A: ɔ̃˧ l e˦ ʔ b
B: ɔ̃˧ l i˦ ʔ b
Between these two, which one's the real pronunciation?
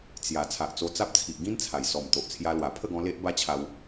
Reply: A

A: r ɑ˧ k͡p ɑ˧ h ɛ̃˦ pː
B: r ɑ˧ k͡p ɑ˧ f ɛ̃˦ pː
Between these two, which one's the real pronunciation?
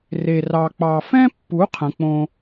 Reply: B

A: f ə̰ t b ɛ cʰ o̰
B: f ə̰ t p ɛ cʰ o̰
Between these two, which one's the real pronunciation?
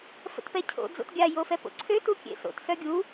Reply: B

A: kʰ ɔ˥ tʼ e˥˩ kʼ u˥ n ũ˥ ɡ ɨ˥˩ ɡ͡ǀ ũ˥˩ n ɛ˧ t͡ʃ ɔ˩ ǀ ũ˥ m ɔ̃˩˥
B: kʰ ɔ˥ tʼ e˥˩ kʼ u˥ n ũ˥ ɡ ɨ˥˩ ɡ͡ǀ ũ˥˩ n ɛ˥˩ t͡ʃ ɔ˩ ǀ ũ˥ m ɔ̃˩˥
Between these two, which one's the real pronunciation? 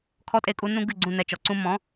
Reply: A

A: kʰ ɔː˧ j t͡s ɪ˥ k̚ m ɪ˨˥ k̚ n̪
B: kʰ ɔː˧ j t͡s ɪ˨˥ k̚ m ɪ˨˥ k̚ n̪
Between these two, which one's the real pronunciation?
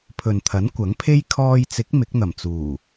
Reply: B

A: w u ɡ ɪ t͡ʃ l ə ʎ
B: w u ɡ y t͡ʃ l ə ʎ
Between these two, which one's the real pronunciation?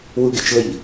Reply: A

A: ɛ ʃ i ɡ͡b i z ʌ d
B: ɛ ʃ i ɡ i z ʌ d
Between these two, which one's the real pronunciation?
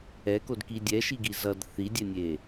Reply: B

